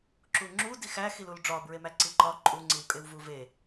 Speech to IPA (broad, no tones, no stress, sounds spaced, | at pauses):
ǁ u ŋ͡ǁ u d i x æ x i l u l ɖ͡ʐ ɒ b ɹ e m æ ǀ i ǃ ɒ ǃʼ u ŋ͡ǀ i w kʼ e w v u v e